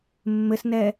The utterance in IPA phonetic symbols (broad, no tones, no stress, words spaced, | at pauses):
mːɘsnɛ